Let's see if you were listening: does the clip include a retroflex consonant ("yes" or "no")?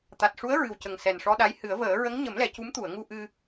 yes